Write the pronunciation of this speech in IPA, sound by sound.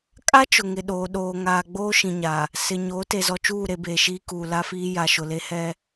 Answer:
kʼ a˦ t͡ʃ ʊ˨ ŋ ɪ˨ ɗ oː˨ ɗ oː˨ ŋ aː˨ ɡ͡b oː˦ ʃ ĩ˨ ɲ a˨ | s ɪ˨ ɲ oː˨˦ t e˨ z ɔ˨ t͡ʃ uː˦˨ ɾ e˨ b eː˨ ʃ iː˦ k uː˨ l a˦ f iː˦ j a˨ ʃ ʊ˨ l e˦ h ɛ˦

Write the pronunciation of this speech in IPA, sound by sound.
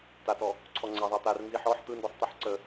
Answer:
t a t ɔ | ǀʰ ɔ ŋ͡ǀ æ ðˤ æ t̪ a r n z i ħ ɔ ħ t̪ ɯ n d ɯ sˤ t̪ i ħ ǀ ə

